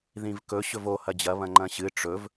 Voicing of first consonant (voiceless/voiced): voiced